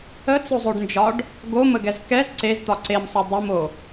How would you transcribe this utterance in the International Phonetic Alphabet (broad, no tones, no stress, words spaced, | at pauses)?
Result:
ət͡sozˤoɖnd͡ʒɒɖ | ɡoməɡɛz kɛz ǀezt̪ɒ ǀemsˤo dˤəmo